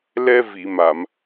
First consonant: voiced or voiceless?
voiced